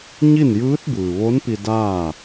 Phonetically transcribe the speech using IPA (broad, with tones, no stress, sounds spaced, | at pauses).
ɲ i˥˨ n j ɯː˧˥ t̚ b ɯː˩ ʋ o˧˥ n p i˧ d aː˥˨